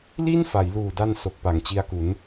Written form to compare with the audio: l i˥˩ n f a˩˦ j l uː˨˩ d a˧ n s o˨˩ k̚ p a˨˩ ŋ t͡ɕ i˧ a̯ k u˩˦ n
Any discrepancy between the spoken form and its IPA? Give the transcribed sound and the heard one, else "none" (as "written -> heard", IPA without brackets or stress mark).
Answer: none